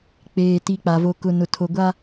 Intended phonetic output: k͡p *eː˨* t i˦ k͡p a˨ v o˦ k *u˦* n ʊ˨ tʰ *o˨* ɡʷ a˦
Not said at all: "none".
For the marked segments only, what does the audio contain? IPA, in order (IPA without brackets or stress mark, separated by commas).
eː˨, ʊ˦, o˨